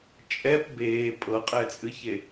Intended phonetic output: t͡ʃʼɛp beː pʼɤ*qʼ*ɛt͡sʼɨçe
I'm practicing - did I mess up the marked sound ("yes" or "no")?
no